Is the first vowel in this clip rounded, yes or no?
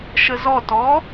no